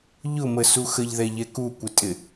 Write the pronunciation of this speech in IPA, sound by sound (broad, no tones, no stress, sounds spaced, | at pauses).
ʎ ʊ m ə s u x ə ʎ ð ɛ ʎ ɛ k u kʷ ɪ tʼ ɪ